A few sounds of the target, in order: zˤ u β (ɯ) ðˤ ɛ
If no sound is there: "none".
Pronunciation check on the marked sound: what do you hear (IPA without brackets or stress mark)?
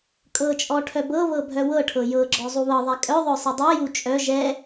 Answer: ɤ